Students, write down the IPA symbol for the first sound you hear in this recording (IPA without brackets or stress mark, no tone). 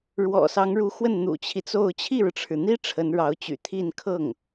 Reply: ɻ